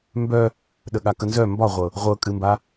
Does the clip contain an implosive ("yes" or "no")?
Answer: yes